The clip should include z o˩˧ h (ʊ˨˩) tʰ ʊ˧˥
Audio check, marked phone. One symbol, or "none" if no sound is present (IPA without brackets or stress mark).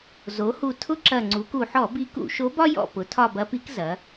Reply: u˨˩